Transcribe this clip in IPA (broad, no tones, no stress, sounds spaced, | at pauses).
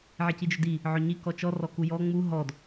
ʕ i c i d͡ʒ ɵ d i | ʕ ɵ ɲ i k ɔ t͡ʃ ɔ r ɔ k u j ɔ ŋ͡m u ɦ ɔ d